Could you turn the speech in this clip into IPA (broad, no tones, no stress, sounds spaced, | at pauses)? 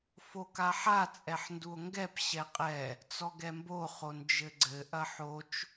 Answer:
f o k a ħ a t͡sʼ ɛ ħ n d u o̯ ŋ ɡ ɛ p ɕ ɛ qʼ ɛ | t͡s ɔ ɡ ɛ m b o χ o n d͡ʒ ɘ ɡ͡ǀ ɘ ʔ ɐ ħ o t͡ʃ